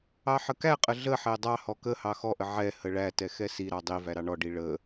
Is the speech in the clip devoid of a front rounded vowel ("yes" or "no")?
yes